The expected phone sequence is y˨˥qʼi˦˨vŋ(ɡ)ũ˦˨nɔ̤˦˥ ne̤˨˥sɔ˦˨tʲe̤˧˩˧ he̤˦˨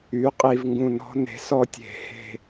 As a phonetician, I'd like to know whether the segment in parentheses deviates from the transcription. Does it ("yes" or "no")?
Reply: no